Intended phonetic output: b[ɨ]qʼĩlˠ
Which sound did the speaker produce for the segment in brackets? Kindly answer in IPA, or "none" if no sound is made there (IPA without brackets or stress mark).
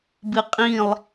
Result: ɨ